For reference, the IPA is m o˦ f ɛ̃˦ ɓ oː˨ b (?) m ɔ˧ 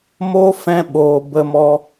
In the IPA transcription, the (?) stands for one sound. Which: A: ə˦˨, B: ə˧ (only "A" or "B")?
B